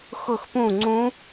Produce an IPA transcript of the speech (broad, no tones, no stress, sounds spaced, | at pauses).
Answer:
x ʊ x p ũ ŋ͡ǀ ũ